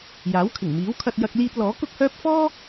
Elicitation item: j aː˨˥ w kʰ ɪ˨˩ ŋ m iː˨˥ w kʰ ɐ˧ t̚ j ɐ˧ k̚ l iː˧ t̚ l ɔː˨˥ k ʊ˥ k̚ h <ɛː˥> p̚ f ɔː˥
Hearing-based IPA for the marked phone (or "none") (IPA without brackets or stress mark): œː˥